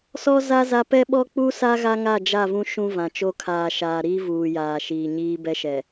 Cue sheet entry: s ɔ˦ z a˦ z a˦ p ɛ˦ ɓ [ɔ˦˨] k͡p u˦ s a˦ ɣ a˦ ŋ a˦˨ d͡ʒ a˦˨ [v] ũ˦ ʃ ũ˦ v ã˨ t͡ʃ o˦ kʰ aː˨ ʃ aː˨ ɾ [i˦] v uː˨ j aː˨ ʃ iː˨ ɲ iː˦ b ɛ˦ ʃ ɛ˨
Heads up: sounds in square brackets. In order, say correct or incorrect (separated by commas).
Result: incorrect, correct, incorrect